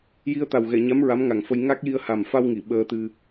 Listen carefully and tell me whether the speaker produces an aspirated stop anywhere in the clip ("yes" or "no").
no